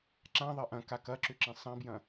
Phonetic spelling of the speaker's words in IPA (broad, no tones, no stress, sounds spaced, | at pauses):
ǁ ã ðˤ ɐ ʔ ɐ̃ k a k ɐ ǁ ʏ ǁ ĩ sˤ ɐ̃ b j ɐ̃